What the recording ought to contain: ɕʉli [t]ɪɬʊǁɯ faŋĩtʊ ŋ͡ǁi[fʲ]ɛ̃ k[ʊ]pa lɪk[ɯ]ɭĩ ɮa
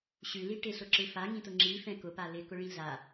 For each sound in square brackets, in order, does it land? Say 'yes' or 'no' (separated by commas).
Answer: no, no, yes, no